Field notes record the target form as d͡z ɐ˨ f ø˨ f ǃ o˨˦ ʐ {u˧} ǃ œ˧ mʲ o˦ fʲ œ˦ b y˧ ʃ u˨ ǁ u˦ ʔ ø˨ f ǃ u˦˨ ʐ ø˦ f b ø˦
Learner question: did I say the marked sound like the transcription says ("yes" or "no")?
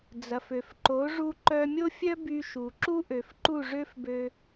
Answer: yes